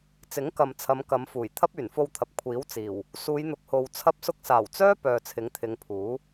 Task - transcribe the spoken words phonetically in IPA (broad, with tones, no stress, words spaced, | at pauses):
t͡sɪ˨˥ŋkɐ˨mt͡sʰɐ˨˧m kɐ˨˧mfuː˨˩j t̪ʰɐ˥p̚yː˨˩nfo˧wt̪ʰɐ˨p̚ kʷʰiː˨˥wt͡siː˨˩w | suː˨˧jn̪ʊ˨k̚ho˨w t͡sʰɐ˧p̚sʊ˧k̚saː˨˩wt͡sœː˥ pœː˨t͡sʰɪ˨˥ŋt̪ʰɪ˨˧ŋ pʰuː˨˥